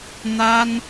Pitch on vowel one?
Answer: high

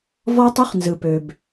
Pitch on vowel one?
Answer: high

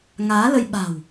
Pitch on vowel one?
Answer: rising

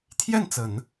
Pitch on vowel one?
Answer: falling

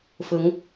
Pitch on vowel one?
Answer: rising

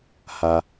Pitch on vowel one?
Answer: low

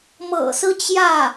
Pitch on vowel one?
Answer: low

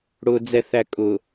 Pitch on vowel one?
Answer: low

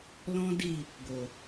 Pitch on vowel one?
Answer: high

